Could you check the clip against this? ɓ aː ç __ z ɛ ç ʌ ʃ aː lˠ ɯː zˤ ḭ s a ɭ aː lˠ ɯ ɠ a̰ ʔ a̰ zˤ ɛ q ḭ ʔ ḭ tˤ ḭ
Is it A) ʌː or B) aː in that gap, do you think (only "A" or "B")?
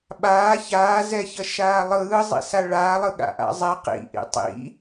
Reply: B